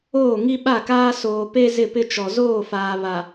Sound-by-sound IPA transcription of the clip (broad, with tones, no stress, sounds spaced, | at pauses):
oː˦˨ ŋ i˦ ɓ a˦˨ k aː˦ s oː˨ p e˦ z ɪ˦˨ p ɪ˦ t͡ʃ ɔ˨ z oː˦˨ f aː˨ β a˨